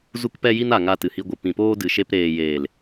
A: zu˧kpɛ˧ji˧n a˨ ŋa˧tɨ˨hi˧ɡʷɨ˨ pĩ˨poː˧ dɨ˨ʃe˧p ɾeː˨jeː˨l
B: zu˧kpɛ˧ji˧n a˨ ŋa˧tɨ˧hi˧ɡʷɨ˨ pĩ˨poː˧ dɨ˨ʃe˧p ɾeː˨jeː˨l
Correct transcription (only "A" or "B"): A